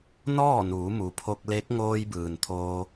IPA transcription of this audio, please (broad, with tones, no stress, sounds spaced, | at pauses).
n ɔː˥˨ n uː˩˧ m u˩ pʰ o˧ k̚ l e˧˥ k̚ ŋ oː˧ j b ɯː˩ n t̪ʰ oː˧